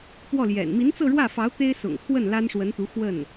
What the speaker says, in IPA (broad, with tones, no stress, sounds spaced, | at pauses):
p w ɔ˥˩ l j ɛ̰˨˩ n m i˧˥ n t͡s ɤ˥˧ ɻ w ä˥˩ f ɑ˧˥ ʊ̯ t̪ e˥ ɪ̯ s ʊ̰˨˩ ŋ t̪ʰ w ə˥˩ n l a˥ n ʂ w ə˧˥ n t̪ u˧˥ x w ə˥˩ n